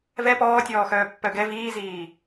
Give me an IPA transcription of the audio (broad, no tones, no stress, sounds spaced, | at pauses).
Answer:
v ɛ p ɔː tʲ ɔː x œː pː œ ɡ ɛ v iː z iː